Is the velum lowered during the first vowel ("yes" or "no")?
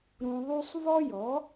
yes